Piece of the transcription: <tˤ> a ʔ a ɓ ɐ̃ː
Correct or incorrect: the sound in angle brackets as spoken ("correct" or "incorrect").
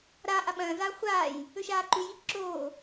incorrect